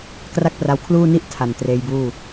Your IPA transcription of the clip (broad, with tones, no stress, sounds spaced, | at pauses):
k r a˥˩ k̚ p r a˧ w kʰ l uː˥˩ n i˥˩ ʔ tʰ a˨˩ n t r eː˧ j b uː˥˩